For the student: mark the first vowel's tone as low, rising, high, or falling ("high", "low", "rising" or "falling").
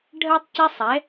high